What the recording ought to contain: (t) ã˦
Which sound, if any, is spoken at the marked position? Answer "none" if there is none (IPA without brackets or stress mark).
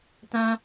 t